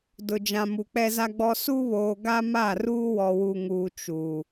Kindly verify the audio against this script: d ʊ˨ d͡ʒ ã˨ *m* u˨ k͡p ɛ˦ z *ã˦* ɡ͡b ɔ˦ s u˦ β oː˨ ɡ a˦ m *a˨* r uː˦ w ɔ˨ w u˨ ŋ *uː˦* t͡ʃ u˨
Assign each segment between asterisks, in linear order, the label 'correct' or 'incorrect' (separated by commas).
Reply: correct, incorrect, incorrect, incorrect